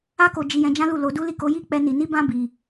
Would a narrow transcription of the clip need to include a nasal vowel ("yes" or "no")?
yes